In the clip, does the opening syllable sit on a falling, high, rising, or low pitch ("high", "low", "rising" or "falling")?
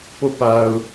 falling